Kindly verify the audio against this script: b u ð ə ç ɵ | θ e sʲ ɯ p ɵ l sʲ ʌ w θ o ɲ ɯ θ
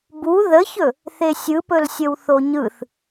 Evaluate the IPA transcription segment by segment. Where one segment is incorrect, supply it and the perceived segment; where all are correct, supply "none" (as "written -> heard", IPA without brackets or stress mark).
ʌ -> ə